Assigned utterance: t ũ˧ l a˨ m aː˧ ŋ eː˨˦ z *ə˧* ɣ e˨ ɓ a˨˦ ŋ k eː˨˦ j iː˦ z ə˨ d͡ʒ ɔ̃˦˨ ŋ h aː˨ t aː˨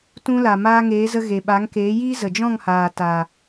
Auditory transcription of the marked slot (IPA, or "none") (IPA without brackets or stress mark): ə˧